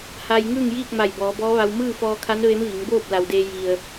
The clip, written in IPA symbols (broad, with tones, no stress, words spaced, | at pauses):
ha˧jŋɯː˥˨ŋjiː˥˨k̚ma˧˩j bɔː˩˧bɔː˧˥ʋa˧w mɯː˥˨fɔː˧kʰa˧˥n ʋe˧˥mʋi˩˧ŋ boː˥˨p̚ la˩wdeː˧ ji˩ə̯